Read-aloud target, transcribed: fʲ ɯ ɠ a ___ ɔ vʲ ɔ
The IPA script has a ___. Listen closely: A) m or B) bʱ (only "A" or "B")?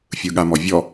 A